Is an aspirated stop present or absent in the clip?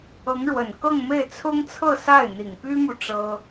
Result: present